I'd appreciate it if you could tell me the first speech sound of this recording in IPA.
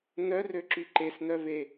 n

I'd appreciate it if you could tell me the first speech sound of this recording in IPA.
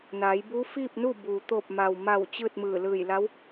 n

